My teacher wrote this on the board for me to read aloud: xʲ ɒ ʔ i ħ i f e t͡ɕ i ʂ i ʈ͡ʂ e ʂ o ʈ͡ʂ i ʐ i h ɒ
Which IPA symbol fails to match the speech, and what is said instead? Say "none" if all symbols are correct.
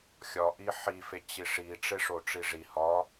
none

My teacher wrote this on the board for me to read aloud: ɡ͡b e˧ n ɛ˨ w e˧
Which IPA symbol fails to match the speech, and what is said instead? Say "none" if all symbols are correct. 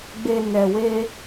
none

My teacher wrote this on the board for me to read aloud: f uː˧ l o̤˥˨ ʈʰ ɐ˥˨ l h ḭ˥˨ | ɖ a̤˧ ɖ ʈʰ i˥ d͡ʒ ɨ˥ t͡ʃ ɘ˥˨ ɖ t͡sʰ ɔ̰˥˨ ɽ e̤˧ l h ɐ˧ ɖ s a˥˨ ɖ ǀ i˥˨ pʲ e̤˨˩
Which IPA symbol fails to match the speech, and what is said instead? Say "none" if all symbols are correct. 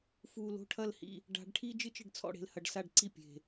none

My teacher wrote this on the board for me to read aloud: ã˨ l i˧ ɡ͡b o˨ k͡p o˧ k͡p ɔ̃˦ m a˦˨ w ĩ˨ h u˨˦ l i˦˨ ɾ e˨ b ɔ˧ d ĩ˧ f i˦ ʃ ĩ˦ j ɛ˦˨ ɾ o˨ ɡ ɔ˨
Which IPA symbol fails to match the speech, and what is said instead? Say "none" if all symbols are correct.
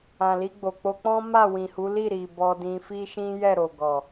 e˨ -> i˨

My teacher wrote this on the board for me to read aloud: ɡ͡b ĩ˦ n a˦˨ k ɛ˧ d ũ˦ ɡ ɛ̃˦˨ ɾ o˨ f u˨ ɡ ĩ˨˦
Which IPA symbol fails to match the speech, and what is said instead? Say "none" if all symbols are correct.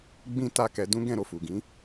n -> t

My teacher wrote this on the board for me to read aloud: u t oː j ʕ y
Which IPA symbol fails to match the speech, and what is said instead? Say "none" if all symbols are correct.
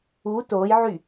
none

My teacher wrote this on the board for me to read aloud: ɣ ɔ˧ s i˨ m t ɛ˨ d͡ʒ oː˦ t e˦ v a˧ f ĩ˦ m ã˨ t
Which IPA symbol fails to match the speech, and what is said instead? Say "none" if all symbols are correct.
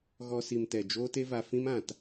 none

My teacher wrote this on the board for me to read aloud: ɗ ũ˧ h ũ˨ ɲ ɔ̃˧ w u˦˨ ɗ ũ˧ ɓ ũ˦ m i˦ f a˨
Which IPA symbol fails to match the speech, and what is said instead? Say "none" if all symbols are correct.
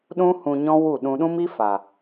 ɓ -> ɗ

